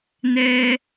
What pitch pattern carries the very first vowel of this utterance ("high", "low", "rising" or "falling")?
high